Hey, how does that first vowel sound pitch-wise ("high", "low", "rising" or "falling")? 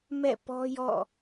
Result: falling